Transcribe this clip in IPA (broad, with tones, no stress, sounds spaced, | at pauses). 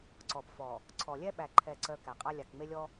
ǀ ɔ˨ p f ɔ˨ | ǀʰ ɔ˨ lʲ ɛ˦ ɓ æ˨ ǃʰ ɛ˦˨ ǀ œ˦ k æ˨ qʼ a˦ lʲ a˨ k ŋ͡m e˦ lʲ ɔ˦